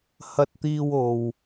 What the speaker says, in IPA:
h ɐ˧ t̚ t̪ iː˧ w o˨ w

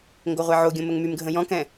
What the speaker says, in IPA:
ŋ ɡ o ʁʷ ɛ ʕ o ɡʲ õ m ə ŋ m y m ɡʱ ə̃ j ɔ̃ k ɛ̃

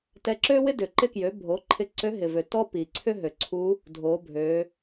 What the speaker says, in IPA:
t ɛ˧ ǁ ø˥ w ɪ˥ d ʏ˩ ǃ ɪ˧ k j ø˩˧ bʱ o˩˧ ǃʰ ɪ˧ ǀ ø˧˥ ɦ ɪ˩ v ø˩ t ɔ˥ p i˩ ǀʰ ʏ˥ ɦ ø˩ ǀʰ u˧˥ | dʱ o˩˧ bʱ ø˩˧

